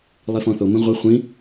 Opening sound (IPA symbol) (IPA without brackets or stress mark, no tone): lˠ